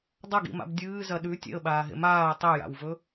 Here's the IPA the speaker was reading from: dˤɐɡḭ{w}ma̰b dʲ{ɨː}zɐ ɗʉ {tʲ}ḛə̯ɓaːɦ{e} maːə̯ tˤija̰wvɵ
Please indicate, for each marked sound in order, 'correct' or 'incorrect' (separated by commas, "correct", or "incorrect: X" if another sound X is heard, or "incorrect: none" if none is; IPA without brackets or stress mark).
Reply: incorrect: none, correct, correct, incorrect: ḛ